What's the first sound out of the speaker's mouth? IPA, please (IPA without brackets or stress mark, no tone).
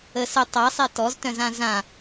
ə